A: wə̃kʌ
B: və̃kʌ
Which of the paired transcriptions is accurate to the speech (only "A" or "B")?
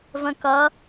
B